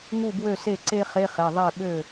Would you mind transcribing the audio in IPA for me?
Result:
ŋ u˥˩ b w ø˥˩ s e˥˩ ǀ e˥ χ e˧˥˧ χ e˩˧˩ ðˤ e˥˩ ɓ ø˥˩

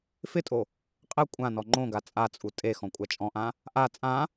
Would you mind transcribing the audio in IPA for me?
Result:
f ɪ tʼ o | qʼ ɛ kʷʼ ã n ɔ ŋ͡ǃ õ ɡ a t͡sʼ a t͡sʼ u tʼ e x ɔ̃ kʷʼ a t͡ʃʼ ɔ̃ ʔ ã | ʔ a t͡sʼ ã

